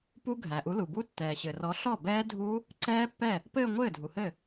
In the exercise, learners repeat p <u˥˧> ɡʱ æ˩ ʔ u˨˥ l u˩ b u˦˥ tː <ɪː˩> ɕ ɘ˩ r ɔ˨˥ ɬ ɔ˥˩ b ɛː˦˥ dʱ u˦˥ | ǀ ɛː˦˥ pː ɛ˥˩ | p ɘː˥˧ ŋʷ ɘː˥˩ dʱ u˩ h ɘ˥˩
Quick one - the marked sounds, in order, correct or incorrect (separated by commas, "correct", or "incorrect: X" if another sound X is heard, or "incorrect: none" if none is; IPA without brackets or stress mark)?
incorrect: u˦˥, incorrect: ɛː˩